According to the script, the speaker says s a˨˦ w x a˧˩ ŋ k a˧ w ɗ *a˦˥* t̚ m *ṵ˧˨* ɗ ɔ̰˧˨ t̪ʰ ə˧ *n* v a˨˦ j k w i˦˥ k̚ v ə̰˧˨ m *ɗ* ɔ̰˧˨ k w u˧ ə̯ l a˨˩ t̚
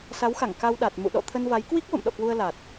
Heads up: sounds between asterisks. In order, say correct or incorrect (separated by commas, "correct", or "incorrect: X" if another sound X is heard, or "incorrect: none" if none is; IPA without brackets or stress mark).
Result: incorrect: a˨˩, correct, correct, correct